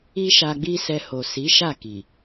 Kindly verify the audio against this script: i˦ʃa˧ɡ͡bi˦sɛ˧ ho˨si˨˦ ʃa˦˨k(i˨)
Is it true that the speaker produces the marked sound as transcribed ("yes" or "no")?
yes